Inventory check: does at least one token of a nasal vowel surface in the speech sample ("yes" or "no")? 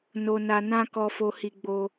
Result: yes